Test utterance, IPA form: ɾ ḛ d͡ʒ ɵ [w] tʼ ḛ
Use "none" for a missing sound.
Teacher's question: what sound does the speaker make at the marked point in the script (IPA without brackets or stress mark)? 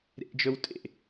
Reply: w